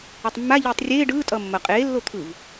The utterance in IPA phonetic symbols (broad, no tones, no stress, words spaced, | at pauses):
ɯtˤmːa ʎiːtˤrʲeː ɖɯː tʼʌːmːʌ qʼeː lːot̪ʰɯv